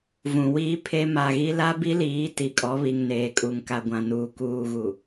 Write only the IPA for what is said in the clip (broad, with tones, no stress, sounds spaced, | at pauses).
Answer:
v ũ˨ w iː˦ pʰ e˦ m a˨ ɣ i˦ l a˦ b i˦ l iː˨˦ t i˨ kʼ ɔ˨˦ β i˨ ŋ n eː˨ kʼ u˨ ŋ k a˨ ɡʷ ã˨ n uː˨ k uː˨ ɣ u˨